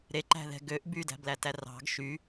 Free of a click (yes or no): no